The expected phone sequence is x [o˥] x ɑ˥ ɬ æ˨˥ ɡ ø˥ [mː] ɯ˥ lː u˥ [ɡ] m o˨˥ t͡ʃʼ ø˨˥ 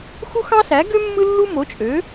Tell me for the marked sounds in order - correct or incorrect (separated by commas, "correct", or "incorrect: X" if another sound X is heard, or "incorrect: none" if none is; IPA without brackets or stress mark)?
incorrect: u˥, correct, incorrect: none